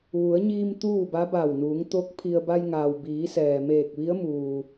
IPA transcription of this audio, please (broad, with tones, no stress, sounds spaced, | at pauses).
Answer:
ʋ u˩˧ ə̯ ɲ iː˧ m t̪ uː˥˨ b a˧˥ b a˧˩ w n uː˩˧ ŋ t̪ o˧˥ k̚ pʰ i˧ ə̯ b a˧ j ŋ aː˩ w b iː˩˧ s ɛː˩ m eː˧˩ k̚ ʋ i˧˥ ə̯ m uː˩